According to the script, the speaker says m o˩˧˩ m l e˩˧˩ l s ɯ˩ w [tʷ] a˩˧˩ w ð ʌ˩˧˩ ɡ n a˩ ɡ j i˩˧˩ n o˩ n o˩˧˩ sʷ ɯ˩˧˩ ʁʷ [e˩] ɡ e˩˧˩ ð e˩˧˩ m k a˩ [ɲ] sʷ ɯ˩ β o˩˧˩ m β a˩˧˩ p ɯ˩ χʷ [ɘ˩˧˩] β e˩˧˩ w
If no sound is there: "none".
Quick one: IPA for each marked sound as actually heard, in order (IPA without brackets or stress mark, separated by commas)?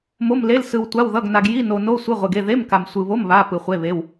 tʷ, e˩, m, e˩˧˩